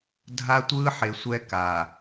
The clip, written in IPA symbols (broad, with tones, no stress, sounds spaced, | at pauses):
dʱ a˦ tʷ ɯː˦ ħ e˨ sʷ ɛ˦ k a˨